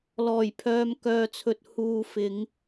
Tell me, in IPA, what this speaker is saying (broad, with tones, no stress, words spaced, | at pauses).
lɔː˨˩jpʰœː˨mkœː˨t͡sʰɵ˨t̚ huː˨ fɪ˨˧ŋ